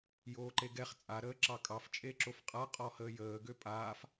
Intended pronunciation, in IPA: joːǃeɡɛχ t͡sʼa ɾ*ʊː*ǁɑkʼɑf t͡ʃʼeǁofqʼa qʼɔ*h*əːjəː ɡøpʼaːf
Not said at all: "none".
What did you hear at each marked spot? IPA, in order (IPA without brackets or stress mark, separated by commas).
əː, h